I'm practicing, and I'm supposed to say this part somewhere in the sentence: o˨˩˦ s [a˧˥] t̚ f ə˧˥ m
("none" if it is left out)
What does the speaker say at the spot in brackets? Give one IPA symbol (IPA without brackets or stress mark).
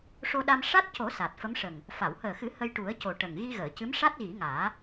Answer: a˨˩